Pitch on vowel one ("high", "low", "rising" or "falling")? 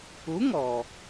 rising